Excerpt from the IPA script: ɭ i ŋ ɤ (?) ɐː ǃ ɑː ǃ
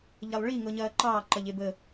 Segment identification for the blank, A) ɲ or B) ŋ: A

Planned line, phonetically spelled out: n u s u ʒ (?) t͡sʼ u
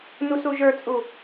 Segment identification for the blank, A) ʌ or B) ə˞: B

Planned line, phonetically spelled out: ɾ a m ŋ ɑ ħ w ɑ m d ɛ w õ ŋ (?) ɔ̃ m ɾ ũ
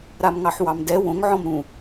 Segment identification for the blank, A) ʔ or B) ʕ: B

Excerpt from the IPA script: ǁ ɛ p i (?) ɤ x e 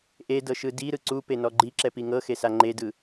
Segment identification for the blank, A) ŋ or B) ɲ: A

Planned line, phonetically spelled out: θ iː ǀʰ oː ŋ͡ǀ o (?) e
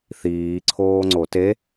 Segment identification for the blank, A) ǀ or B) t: B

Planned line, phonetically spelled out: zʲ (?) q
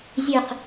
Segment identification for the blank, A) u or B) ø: B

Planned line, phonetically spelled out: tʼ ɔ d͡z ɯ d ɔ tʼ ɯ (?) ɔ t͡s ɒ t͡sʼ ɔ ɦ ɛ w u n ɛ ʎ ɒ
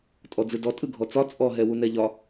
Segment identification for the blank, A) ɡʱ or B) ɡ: A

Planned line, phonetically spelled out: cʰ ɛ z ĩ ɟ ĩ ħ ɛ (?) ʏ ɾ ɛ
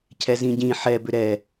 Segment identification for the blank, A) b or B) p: A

